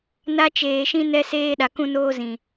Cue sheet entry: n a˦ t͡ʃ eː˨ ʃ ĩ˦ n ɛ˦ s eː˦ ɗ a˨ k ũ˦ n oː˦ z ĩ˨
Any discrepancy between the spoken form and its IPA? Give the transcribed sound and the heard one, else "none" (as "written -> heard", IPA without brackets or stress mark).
none